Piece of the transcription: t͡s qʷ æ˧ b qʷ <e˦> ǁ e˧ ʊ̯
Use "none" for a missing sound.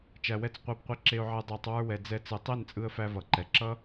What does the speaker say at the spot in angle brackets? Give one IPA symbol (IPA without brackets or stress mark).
e˧